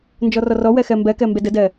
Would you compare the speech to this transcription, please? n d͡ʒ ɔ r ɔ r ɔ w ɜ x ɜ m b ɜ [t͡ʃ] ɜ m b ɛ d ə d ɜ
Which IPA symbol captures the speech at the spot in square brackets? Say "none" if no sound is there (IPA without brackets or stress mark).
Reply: k